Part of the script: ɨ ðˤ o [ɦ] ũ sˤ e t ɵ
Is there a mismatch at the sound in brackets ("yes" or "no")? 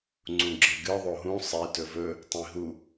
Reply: no